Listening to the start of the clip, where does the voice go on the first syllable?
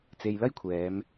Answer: low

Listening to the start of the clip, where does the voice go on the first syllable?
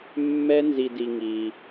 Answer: high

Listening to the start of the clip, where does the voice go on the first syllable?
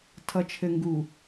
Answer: low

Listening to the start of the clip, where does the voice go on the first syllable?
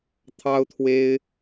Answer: high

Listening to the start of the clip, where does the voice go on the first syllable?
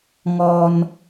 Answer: high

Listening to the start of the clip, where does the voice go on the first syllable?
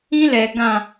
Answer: high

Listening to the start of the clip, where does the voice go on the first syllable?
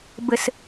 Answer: low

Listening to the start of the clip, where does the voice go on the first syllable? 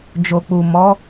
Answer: low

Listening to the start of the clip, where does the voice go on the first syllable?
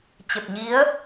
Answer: low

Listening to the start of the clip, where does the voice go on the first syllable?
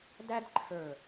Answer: high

